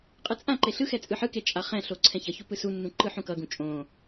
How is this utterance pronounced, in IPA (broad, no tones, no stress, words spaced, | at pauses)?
qʼɯt͡sʼãǃe ɬɯxɛ t͡sʼɯħɯke t͡ʃʼaχɛ̃ɬo ǀʰɛ̃çʌçu pɯsunːũ ǃɯħũkʌɡũ t͡ʃʼõ